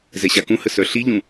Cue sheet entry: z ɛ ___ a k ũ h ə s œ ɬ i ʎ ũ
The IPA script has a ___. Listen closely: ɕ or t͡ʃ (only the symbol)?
ɕ